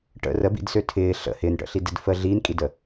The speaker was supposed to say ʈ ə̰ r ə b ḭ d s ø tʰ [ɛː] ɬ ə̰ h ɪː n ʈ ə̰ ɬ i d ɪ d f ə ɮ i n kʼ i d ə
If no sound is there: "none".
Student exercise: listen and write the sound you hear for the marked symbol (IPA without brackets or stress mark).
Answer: ɪː